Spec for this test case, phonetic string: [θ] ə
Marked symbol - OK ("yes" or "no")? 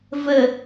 no